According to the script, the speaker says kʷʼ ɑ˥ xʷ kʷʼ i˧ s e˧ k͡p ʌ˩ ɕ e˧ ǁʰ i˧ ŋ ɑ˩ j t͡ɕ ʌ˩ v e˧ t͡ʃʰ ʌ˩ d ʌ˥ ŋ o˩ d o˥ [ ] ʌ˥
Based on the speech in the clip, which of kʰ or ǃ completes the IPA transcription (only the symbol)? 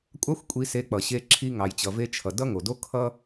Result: kʰ